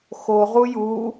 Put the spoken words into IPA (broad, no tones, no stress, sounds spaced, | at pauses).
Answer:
x o ʁ u j u